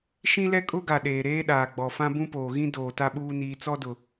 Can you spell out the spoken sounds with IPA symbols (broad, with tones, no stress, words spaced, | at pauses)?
ʃĩ˦ lɛ˦kʼʊ˦ɡa˨ ɗeː˨ ɾeː˦ɗaː˨ɡ͡bɔ˨fã˦ bũ˦poː˨ɣĩ˦ doː˨ta˦ɓuː˦ niː˨t͡sɔ˦dʊ˨